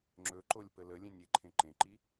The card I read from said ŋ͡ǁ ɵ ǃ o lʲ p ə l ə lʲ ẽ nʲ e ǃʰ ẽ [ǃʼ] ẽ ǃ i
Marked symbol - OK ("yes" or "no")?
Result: no